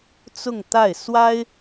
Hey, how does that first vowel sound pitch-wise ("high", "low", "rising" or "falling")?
falling